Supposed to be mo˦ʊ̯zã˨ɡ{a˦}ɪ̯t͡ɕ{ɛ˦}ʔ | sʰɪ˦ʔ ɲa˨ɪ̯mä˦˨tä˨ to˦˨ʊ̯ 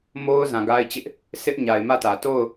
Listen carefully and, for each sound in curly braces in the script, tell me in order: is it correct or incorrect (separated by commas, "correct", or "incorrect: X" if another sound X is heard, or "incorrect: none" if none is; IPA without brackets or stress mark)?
correct, incorrect: ɪ˦